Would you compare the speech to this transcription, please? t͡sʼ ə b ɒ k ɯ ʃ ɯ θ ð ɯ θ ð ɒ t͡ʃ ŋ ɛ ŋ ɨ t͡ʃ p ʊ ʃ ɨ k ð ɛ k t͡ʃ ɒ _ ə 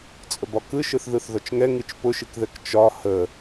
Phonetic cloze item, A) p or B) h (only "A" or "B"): B